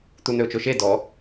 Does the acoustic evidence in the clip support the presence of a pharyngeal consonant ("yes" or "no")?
no